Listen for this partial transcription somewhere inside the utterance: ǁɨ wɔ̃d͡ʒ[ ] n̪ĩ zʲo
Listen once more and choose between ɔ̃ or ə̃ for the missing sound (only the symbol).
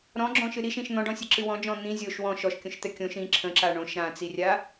ɔ̃